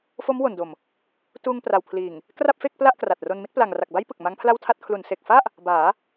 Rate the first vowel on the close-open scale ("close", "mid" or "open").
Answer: mid